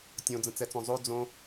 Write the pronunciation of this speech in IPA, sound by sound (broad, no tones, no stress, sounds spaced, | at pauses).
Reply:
tʲ õ d͡z ə̃ t͡s ɛ t͡s õ zˤ o d͡z õ